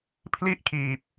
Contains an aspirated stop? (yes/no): yes